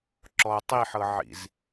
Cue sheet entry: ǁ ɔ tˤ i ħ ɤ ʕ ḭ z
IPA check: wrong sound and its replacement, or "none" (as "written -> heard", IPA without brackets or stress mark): none